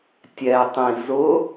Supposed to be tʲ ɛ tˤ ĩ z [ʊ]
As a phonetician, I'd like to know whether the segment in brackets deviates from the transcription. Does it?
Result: no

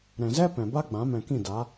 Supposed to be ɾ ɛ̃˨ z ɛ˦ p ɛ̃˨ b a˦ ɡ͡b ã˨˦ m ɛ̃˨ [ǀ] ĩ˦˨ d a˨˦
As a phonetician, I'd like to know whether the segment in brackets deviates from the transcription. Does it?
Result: yes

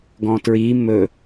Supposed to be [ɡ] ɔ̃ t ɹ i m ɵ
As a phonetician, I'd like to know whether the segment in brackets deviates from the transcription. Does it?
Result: no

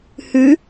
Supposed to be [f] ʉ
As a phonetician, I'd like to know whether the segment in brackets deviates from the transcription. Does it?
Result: yes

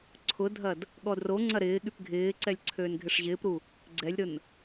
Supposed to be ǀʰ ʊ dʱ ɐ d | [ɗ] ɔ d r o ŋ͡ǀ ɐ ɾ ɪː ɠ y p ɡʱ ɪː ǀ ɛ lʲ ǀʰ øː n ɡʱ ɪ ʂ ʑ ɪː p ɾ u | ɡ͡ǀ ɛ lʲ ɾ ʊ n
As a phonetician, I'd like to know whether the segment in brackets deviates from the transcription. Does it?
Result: yes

